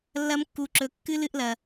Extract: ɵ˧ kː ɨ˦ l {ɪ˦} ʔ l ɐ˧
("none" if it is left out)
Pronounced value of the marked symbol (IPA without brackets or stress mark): ɨ˦